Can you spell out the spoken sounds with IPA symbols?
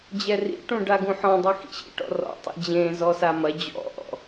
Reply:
d͡ʑɛrḭʈũ ɖaɡũħɔ̃dˤɨ xḭɕḭ ʈɔ̰rɔ̰tˤḭ d͡ʑẽzɔ samɐ d͡ʑɔ̰ʔɔ̰

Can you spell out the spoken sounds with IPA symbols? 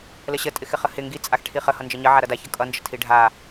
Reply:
ləɕə tʼɪxɪχəhɪ ŋɡi t͡sʼaxʈʰiχə hʌnd͡ʒəɲə ʕaɾʌda çʌkʼʌ nd͡ʒətʰiɖʱa

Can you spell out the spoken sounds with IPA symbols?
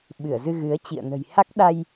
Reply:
ɓɨ˧˩ə̯zɨ˧ɣɨ˨˦ə̯t͡ɕḭ˧˨ə̯ nə̤˨˩jha˦˥k̚ ɗa˧j

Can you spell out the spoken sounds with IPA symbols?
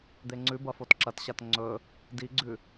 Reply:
d̪eŋ͡ǀʉbɐ fotǁɐtɕat ŋ͡ǀɵ | diɡ͡ǀʉ

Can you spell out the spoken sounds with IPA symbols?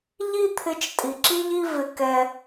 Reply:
ʎi˥t̪ʰɪ˧t͡ʃ tʼi˩ǁi˥ʎi˥ vɪ˧kɛ˧

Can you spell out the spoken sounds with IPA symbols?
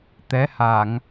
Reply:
t̪ɛ˨˦ha˧˩˨ŋ

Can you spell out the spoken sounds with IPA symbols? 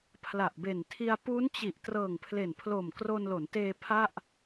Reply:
pʰla˨˩ʔbe˨˩ntʰi˧a̯ pu˦˥nt͡ɕi˨˩ʔ trɤː˨˩ŋpʰle˨˩npʰlo˨˩m kro˧nlo˩˦nteː˧ pʰa˥˩ʔ

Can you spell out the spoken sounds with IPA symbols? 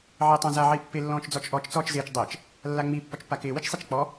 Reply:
ʕɪːtˤãza ʕipːɪ lːɔ̃ːt͡ʃd͡zɔt͡ʃʔɔt͡ʃ t͡sɔːt͡ʃzɪːt͡ʃ dˤɪːt͡ʃ | lːaŋ͡mi pːɔt͡ʃpːakɪː wit͡ʃsˤit͡ʃk͡pɔ

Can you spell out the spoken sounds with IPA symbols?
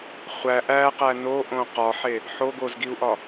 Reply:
χʷæ ʔæqæ noʔõ qɒħe | ħo ɡozɡiu̯ʔɒ

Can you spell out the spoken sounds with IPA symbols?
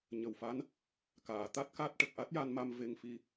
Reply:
ɲə˨˩w fa˧˥n | kaː˨˩˨t̪a˦˥t̚ka˦˥t̚ʈə˨˩k̚ ʔa˦˥t̚ja˧nma˧m ve˧ŋfi˧

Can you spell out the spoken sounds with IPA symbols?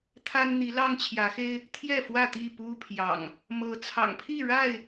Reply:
t̪ʰa˦n n̪i˨˦lɑ˦ŋt͡ɕʰjä˨˦xe˦ɪ̯ | t̪ʰjɛ˥˨fwä˥˨t̪i˥˨ pu˦pʰjɑ̰˨˩ŋ | mɤ˨˦t͡sʰɑ̰˨˩ŋpʰi˥˨ ɻa˥˨ɪ̯

